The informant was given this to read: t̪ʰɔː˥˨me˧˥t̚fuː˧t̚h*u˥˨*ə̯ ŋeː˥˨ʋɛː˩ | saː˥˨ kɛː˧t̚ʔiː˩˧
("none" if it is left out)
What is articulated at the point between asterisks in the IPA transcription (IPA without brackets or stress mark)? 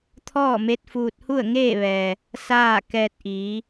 u˥˨